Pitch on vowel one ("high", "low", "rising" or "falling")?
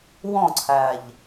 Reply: falling